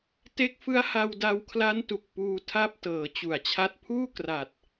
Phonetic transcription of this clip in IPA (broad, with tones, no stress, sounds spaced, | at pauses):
t e˦˥ k̚ f ɯ˦˥ a̯ h a˧ w d a˧ w kʰ l a˦˥ n t u˨˩ k̚ p uː˧ tʰ a˦˥ p̚ t ɤː˩˦ t͡ɕ u˨˩ a̯ t͡ɕʰ a˦˥ t̚ pʰ uː˥˩ k r a˨˩ t̚